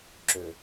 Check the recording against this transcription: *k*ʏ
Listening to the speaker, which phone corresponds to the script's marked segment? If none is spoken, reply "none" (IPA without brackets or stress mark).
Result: ǁ